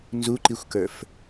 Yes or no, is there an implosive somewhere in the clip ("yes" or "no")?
no